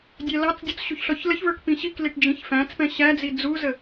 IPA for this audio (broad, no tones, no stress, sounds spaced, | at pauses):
dʲ æ l ɑ t͡s dʲ u t͡s ɕ u ç ɬ ɔ ç l ə ç v ə˞ k p ĩ ɕ i k l i ʈ d͡ʒ ĩ ç f æ̃ t͡s p ɛ̃ ɕ æ d͡z i d͡z u z ə